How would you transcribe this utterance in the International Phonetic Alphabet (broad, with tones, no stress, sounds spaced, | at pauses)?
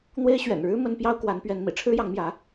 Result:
n̪ w e˥ ɪ̯ ɕ ɥ ɛ̰˨˩ n ɻ ɻ̩˥ m ə˥ n p j ɑ˥ ʊ̯ k w a˧˥ n p ɥ ɛ˧˥ n m ḭ˨˩ ʈ͡ʂʰ ɻ̩˥ j ɑ˧˥ ŋ m j ä˧˥